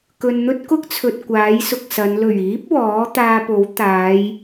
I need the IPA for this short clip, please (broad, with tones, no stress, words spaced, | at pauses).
kɵ˨nn̪ɵ˥t̚kʊ˥k̚t͡sʰɵ˨t̚ kʷaː˨˥jsʊ˨k̚sɐ˨˧n lɵ˨˩ɥiː˨˥p̚ wɔː˨˥ t̪aː˧po˨˥w t̪aː˨˧j